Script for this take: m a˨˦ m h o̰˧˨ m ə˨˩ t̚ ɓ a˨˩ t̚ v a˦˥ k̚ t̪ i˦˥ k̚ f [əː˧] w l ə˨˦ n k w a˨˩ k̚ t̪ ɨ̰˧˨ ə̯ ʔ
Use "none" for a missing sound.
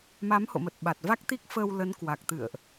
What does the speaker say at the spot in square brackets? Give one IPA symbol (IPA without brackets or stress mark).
əː˧